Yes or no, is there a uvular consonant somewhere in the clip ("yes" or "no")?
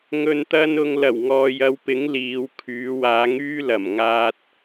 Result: no